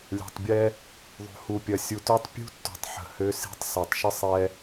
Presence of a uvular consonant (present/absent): absent